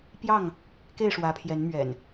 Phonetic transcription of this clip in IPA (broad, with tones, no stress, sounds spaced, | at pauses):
p j ɑ˥˨ ŋ | k e˥˨ ɪ̯ ʂ w ä˨˦ pʰ j ɛ˨˦ n m ɥ ɛ̰˨˩ n